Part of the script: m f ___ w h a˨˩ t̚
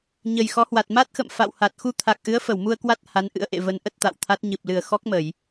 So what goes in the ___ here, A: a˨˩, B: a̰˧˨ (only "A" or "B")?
B